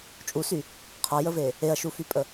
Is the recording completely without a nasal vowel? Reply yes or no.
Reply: yes